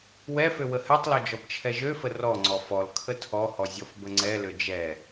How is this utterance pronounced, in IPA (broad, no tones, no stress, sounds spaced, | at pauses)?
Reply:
w ɛ f ø w ə h ɛ tˤ l ɔ d͡ʒ ɔ b t͡ʃʰ ɛ ʒ ø f ə r ɔ ŋ͡ǀ ɔ f ɔ l kʰ ə tʰ ɔ h ɔ zʲ ɔ f b ə ŋ͡ǀ ɛ l ø d͡ʒ ɛ